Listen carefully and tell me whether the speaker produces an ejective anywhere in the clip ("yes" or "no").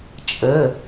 yes